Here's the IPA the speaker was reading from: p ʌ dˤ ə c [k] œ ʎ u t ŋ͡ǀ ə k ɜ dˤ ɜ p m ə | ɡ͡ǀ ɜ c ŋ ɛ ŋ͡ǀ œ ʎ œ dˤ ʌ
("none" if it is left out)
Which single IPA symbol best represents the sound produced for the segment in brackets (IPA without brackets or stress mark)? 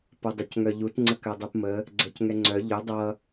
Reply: ŋ